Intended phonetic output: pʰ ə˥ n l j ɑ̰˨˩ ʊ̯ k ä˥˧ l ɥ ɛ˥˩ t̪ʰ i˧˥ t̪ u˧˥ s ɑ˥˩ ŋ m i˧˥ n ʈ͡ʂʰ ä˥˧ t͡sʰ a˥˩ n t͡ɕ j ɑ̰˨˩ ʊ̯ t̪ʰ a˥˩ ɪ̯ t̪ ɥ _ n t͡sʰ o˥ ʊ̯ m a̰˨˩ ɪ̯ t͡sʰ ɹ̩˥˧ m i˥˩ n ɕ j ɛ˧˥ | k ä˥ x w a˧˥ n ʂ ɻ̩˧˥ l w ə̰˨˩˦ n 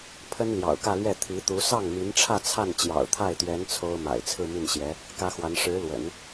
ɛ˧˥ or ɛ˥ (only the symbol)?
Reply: ɛ˧˥